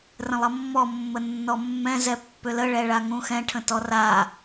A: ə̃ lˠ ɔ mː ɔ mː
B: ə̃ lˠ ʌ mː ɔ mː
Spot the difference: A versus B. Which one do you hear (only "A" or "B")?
B